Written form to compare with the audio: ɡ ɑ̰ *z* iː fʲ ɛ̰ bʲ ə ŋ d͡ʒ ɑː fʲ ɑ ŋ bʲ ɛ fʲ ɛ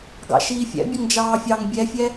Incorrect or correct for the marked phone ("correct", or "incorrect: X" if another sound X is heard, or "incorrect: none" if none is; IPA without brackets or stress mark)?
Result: incorrect: ʃ